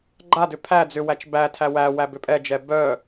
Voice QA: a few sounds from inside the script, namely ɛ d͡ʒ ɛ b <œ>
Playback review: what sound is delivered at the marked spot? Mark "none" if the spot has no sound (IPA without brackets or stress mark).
œ